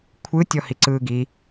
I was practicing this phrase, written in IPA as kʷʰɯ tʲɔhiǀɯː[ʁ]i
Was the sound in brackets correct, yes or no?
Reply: no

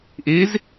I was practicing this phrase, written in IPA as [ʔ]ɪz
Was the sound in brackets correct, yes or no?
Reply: yes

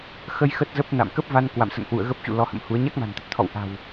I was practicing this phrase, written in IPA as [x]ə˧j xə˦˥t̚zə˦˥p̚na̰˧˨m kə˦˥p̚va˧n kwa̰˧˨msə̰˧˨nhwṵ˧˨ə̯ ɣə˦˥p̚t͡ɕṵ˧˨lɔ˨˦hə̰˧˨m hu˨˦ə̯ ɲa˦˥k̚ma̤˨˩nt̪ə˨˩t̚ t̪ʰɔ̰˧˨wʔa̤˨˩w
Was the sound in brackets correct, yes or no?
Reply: yes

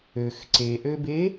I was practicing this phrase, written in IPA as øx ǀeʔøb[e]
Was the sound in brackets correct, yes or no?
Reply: yes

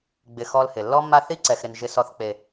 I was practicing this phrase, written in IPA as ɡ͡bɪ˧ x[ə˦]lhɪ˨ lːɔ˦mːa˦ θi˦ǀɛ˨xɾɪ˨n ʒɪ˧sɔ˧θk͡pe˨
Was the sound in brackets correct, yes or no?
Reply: no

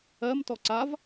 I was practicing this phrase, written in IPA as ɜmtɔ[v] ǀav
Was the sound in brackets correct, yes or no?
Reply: no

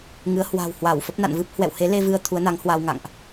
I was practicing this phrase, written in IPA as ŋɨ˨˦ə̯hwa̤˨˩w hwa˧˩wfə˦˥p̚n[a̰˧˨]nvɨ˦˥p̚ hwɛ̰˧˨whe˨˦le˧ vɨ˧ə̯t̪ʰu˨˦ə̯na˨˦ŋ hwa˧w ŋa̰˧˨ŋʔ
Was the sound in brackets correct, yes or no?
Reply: yes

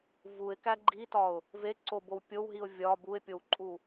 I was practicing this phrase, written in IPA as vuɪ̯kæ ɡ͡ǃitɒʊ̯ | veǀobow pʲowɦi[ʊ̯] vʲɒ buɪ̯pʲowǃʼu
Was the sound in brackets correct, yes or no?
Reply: yes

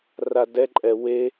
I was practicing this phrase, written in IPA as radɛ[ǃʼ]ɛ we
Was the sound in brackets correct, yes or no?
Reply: yes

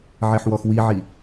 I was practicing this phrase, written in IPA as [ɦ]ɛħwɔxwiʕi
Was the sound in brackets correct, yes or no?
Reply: no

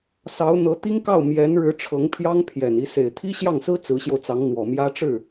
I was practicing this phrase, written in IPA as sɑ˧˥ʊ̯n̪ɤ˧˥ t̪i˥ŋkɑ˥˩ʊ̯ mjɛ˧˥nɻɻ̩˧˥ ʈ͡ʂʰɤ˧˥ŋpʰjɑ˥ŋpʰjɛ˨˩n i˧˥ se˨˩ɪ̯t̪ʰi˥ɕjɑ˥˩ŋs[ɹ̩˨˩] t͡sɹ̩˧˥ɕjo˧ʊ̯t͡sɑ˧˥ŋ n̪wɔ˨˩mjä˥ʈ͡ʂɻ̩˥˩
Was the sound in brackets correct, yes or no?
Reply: no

